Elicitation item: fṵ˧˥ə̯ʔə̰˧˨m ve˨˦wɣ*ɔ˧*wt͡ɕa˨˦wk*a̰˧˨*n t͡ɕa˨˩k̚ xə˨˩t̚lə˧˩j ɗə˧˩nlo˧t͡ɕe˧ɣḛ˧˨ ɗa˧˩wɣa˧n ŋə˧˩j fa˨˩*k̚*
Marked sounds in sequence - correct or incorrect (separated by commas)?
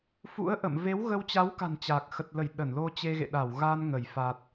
incorrect, incorrect, incorrect